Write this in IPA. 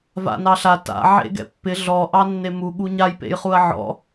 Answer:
va̰nɑɬa ta̰ ʕḛɡɛ̰pːɪ ɮɔʔɑ nːemuɠu ɲajpḛjχuɐ̯ ʕɔ̰

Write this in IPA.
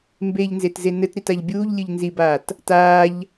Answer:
mbeʎnzet zenɘtɾit aʎbʲuːʎlʲɨʎ nzibaːt | taːʎ

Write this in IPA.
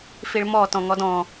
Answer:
fiɭmɔ tɔ̃ŋɔdɔ̃

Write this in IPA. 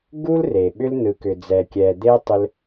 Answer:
ɡu˦lre˨ ɓʏ˦lnɯ˨kʏ˨d͡zɛ˨ kʲɛ˨d̪e˦ tˤʏ˧l

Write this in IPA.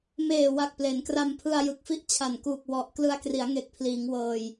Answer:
meː˨˩wa˨˩k̚ ple˩˦nkra˧mpʰɯ˧a̯ jɯ˨˩k̚fi˥˩ʔ t͡ɕʰa˨˩nkuː˨˩k̚ wɔ˨˩ʔ klɯ˧a̯kri˩˦a̯ŋe˨˩k̚pʰliː˩˦ŋ wɤː˧j

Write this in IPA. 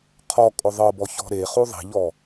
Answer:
qʰɔ kʼʊðˤɤbɔ çɔ̤ɾeχu ðˤi̤ʎɔ

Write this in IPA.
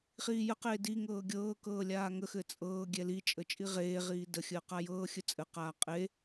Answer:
χiːjəqeː diŋɤː ɡʲɤː kɤːlʲaːŋəxɘ t͡sʼɤː ɡʲɛlit͡ʃʼə t͡ʃʼiʁeːʁiː dəxʲəː qajɤːxʲə t͡sʼɘqaː qʼe

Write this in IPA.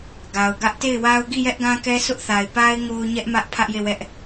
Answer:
ɡa˨ʊ̯ ɡä˦ʔ te˦˨ɪ̯wa˦ʊ̯ ɡi˦˨jɛ˦ʔ ɡã˦kɛ˦sʊ˦ʔθa˨ɪ̯ pa˦ɪ̯ ŋo˦ʊ̯ɲɛ˦ʔmä˦ʔ pʰä˦ʔje˦˨wɛ˦ʔ

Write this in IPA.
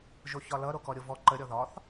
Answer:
ʒoçɒlʌ ɾokɔɾʲovɔ ǃə ɾʲɔðɒθ

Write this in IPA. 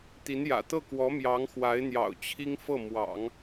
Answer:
t̪i˧˥njä̰˨˩ t̪ɤ˥˩kwɔ˧˥mjɑ˧˥ŋ xwa˧˥ɪ̯n̪jɑ̰˨˩ʊ̯ t͡ɕʰi˥ŋfɤ˥˩ mwɑ̰˨˩˦ŋ

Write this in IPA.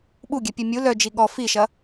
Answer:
ɓuɡʲɛpʲɘ mʲu lœ d͡ʒiɠɔ fiʃɐ

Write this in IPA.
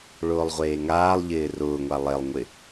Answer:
ɭʊːlˠʁʷeːŋaːlˠʎɪː rʊːŋʷa lˠelˠŋʷɪ

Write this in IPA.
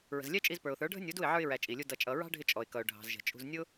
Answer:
ɹə̤˨zlʲɛ˦ t͡ʃʼi˧zpə˞˨ʊ̯θə˞˨˦ɖʱə̤˦ nʲu˨˦du˦˨ɪ̯ʕə˞˧ɪ̯ɹæ˨ t͡ʃʼi˨lʲu˧ dʌ˨t͡ʃʼʌ˨ ɹɑ̤˦ɖʱɪ˧ t͡ʃʼɔ˨ɪ̯kʌ˨ʊ̯ ɖʱɑ̤˨zʒə̤˨t͡ʃʼṳ˧z nʲʊ˦

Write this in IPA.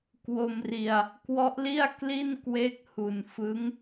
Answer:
kwo˧mri˧a̯ | kwɔ˦˥ʔli˥˩a̯ kli˥˩nkwe˦˥k̚hu˨˩n fɯ˦˥ŋ

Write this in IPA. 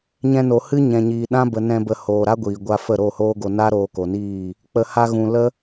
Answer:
ɲɛ̃˧no˨hɨ˦ ɲɛ̃˨ɲiː˨ ɗã˦ bə˨ nɛ̃˧bə˧ hoː˨ɾa˦ɡʷiː˨ɡʷa˧ fə˦˨ɾo˦˨hoː˦ɡo˧ na˦ɾoː˧ko˨niː˦˨ | k͡pə˨ha˧ɣũ˨lə˦

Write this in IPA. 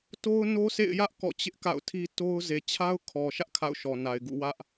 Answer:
to˦ʊ̯no˦sḛ˦˨ɪ̯jä˦ʔ kɔ̰˦˨t͡ɕɪ˦ʔka̰˦˨ʊ̯tʰi˦ to˦ʊ̯ ze˨t͡ɕʰa˦ʊ̯ kʰɔ˨ʃä˦ʔ kʰa̰˦˨ʊ̯ʃɔ˨na˨ɪ̯ɡṵ˦˨ wä˦ʔ

